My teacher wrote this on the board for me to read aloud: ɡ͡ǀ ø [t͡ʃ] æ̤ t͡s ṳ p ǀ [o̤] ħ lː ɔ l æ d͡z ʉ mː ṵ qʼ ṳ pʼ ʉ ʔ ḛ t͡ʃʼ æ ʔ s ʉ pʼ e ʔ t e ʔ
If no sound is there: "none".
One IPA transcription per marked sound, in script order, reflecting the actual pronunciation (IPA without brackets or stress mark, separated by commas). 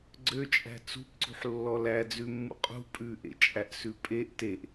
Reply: t͡ʃʼ, ṳ